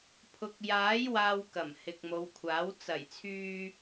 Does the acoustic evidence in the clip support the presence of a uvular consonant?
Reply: no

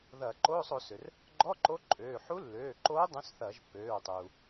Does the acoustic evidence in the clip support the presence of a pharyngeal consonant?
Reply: yes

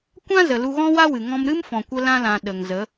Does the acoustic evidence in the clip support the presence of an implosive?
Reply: yes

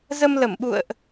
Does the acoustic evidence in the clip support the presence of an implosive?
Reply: yes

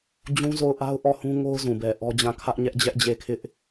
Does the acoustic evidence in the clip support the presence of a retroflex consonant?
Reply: no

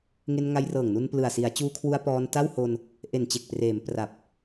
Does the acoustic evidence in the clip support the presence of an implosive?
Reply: no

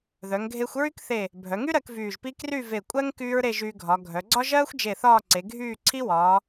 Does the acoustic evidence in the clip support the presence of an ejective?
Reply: yes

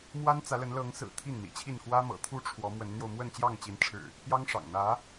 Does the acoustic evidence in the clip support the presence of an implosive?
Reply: no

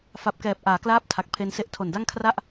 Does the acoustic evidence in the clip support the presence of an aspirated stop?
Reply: yes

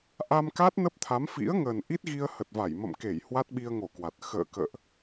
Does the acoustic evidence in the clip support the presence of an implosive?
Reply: yes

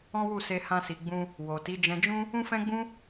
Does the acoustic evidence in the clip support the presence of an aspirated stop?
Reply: no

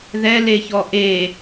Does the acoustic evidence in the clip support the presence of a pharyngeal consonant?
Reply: no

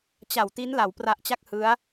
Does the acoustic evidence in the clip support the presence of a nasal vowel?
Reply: no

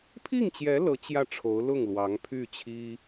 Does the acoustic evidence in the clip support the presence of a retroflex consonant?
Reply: yes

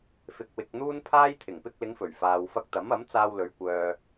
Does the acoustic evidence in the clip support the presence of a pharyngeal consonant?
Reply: no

